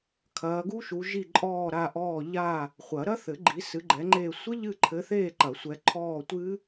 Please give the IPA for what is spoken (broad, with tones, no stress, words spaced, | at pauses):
kʰɐː˨˦ɡu˦˥ʃu˨˦ ʒi˦˨ǃʼɔː˦˨ɾa˦˨ʔɔː˦˨ ʎa˦˨ | χʷɐ˨˩˦ɾɐ˦˥θɘ˨˩˦ ɡ͡ǃi˨˦sɨ˨˦ɡ͡ǃɛ˨˦ŋ͡ǃeː˦˨ sʷɘ˦˥ʎɨ˦˨ǃʰɘ˨˦θeː˦˨ ǃɐ˨˩˦sʷɛ˨˦ ǃʰɔː˦˨tʷɨ˦˥